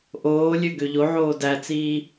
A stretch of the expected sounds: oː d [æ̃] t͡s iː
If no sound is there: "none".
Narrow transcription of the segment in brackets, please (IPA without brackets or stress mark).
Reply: æ